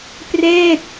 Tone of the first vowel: falling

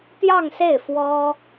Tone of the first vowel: falling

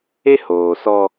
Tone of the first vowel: high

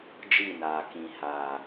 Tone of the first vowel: falling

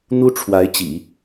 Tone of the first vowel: high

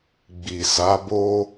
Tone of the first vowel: low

